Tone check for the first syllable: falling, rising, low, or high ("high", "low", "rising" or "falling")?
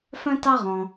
high